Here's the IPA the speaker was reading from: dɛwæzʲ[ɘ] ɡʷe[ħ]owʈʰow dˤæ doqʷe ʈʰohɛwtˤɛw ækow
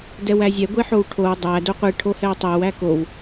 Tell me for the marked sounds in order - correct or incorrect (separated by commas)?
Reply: incorrect, correct